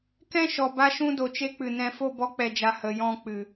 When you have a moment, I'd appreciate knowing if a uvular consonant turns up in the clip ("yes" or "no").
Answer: no